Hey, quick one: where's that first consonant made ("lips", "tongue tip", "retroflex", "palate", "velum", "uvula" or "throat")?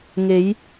velum